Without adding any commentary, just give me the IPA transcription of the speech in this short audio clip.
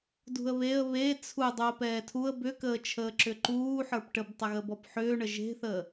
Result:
dṳə̯βeə̯ βe t͡sʰu dˤuə̯pɛːtʰuə̯ bʏkəːt͡ʃʰəː ǁʏǃuː ħə˞pʈəbtˤəɣə bɔpħʏːɳə ʒe̤θəː

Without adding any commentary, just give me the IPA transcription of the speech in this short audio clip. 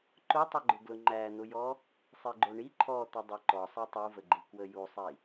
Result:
ǃʊtˤəɡ͡ǃʊ ɡlʊŋ͡ǃæn̪ʊjɔ | sˤiɡ͡ǃoɳi ǃʰɔt̪ədˤe ǃɔsˤæ tˤuvəɡ͡ǃi kwəjusˤi

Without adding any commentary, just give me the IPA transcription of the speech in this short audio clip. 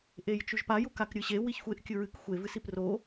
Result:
ʔejt͡ʃʉʒpa jukakɾʲɨɕe wiçxʷeʔ kʲɨɹɨk xʷe vɨsipro

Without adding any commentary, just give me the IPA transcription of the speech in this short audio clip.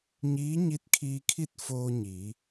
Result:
ɲiː˧˥ ɲi˧˥t̚kʰiː˧kʰi˥˨t̚ foː˧ɲi˩˧

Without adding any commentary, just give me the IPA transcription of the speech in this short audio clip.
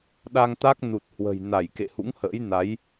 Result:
ɗa˧ŋt̪a˦˥k̚ nu˨˩t̚hwə̤˨˩jna˧˩j kḛ˧˨hṵ˧˥ŋhə̰ː˧˥jna˨˦j

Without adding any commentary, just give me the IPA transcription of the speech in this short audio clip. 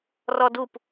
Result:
rɔdup

